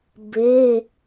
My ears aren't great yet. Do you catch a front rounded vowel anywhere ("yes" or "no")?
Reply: no